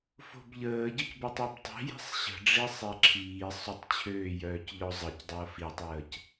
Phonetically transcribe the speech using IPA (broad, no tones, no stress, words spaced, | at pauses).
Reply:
fo̤bʎəːɟəc bətˤibtˤi̤ ji̤sˤɕə̤ ɖ͡ʐisˤɛǁʰiː sˤotˤt͡ɕʰøːjœːc ʎɔzˤəc dˤəːfitˤəːc